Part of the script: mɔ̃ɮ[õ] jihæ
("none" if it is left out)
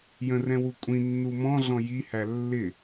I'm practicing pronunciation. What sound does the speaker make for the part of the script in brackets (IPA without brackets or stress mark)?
ɔ̃